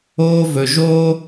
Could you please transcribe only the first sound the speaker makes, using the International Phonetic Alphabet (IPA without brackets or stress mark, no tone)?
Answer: oː